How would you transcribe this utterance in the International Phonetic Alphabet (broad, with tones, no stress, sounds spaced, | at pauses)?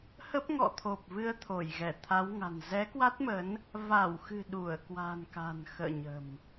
h ə˦˥ p̚ ŋ ɔ̰˧˨ t̪ʰ o˨˩ p̚ v ɨ˧ ə̯ t̪ʰ o˧˩ j ɣ ɛ˧˩ t̪ʰ a˨˦ w ŋ a̤˨˩ n z ɛ˨˦ k w a˦˥ t̚ m ə˨˦ n | v a˧˩ w x ɨ̤˨˩ ɗ u˧˩ ə̯ k w a̤˨˩ n k a̤˨˩ n x ə̰ː˧˨ ɲ ə̤˨˩ m